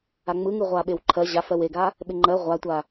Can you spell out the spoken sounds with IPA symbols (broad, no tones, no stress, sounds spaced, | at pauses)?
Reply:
a ŋ͡m ɯ ŋ ɯ ʁʷ a ɓ e w ǃʰ ɜ ʑ a f ɜ w e ɡ a | ɓ ɪ ŋ͡ǃ ɜ ʁʷ a tʷ a